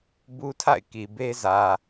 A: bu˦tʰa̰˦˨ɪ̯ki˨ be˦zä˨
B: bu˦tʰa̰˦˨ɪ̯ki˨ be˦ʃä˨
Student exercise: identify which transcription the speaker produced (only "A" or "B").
A